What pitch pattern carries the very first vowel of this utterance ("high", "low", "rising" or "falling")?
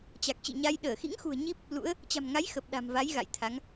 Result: low